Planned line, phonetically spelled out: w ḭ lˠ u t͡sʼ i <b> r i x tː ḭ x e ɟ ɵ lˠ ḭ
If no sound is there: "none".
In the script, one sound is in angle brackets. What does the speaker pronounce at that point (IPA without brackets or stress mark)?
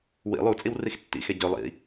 w